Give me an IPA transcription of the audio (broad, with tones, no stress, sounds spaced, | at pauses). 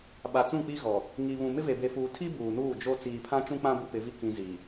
ɓ a˨ t͡s ũ˦˨ k͡p i˦ ɣ ɔ˨ | ŋ i˨ β ũ˨ m ɪ˦ v e˨ b e˨ f uː˨ tʰ i˦ b uː˨ n uː˦˨ d͡ʒ o˦ t͡s iː˨ pʰ ã˦ t͡ʃ ũ˦ k͡p ã˦ b u˦ p ɪ˨˦ v i˦ k ĩ˨ z i˨